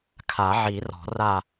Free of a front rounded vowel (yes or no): yes